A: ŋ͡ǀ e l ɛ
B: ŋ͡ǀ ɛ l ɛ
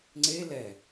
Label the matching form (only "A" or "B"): A